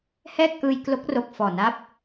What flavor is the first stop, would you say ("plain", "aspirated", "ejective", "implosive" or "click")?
plain